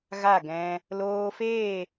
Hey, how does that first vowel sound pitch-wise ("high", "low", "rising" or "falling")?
falling